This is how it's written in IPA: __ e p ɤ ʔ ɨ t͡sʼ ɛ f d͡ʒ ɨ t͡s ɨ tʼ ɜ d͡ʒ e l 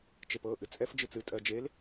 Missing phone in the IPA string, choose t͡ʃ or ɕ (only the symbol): t͡ʃ